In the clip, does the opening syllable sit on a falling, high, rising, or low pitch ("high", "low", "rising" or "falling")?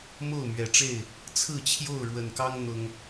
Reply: falling